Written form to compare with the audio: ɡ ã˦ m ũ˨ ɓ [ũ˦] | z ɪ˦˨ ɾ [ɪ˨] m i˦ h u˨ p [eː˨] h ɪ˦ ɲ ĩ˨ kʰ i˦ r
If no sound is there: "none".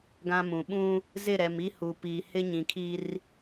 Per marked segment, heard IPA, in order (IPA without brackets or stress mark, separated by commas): ũ˦, ɛ˨, iː˨